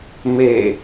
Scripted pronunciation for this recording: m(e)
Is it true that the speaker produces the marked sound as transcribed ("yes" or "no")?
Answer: yes